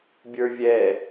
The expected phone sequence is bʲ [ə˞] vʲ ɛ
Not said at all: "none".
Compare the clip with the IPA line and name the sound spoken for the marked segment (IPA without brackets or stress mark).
ə˞